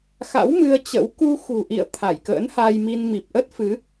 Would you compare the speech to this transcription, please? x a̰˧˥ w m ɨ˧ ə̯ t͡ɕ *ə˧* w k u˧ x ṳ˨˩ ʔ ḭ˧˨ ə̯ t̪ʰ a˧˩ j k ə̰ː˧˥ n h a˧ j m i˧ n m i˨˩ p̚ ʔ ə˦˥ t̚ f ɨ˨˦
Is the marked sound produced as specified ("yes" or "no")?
no